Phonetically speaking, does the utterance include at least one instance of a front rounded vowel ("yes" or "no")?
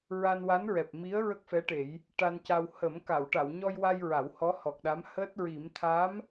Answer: no